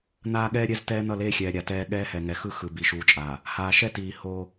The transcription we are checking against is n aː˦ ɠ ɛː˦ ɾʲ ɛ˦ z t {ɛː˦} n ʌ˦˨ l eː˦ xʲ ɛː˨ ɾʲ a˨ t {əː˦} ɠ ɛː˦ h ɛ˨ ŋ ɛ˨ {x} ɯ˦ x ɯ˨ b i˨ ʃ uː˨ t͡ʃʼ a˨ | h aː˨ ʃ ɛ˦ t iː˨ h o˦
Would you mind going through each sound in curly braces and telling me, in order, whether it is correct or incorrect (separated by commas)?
correct, incorrect, correct